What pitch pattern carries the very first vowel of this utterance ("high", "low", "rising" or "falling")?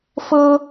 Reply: high